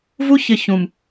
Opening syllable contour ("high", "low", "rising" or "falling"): high